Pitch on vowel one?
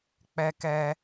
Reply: high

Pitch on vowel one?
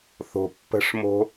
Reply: low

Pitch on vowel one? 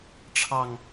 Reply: low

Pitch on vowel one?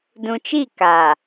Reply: low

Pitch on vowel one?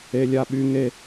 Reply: high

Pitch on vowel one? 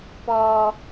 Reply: low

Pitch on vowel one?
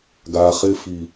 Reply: low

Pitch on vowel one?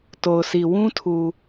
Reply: low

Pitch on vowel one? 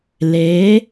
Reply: rising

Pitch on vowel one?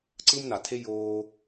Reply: high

